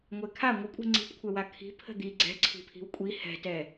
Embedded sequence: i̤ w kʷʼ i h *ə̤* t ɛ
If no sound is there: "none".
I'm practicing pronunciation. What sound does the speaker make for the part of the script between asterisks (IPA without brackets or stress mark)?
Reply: ɛ̤